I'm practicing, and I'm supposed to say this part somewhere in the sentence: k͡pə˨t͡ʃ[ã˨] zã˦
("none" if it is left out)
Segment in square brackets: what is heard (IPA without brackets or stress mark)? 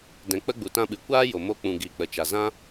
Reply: a˨